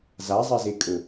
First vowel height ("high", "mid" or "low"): low